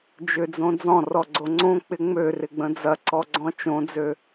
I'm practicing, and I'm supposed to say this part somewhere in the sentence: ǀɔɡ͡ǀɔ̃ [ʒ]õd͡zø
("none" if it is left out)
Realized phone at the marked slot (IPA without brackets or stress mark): t͡ʃ